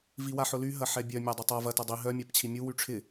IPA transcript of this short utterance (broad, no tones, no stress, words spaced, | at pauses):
viwaħʊly ɦɐħɛbʲœ mʲadˤʊtˤav ɐ tɐdˤi ɦœ mʲapt͡ɕʰimʲu wyʈ͡ʂʰɪ